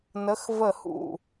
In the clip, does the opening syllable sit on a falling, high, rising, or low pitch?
rising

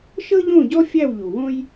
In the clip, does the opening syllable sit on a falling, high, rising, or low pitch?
high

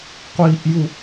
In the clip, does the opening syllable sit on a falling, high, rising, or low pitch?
high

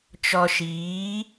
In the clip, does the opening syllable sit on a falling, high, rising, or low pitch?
low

